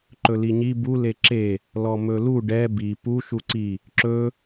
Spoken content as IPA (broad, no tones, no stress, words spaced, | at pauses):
ǃɵliɲi bu leǁe | lɔmɵlu ɖɛ bi pu ʃuǀi | ǁɵ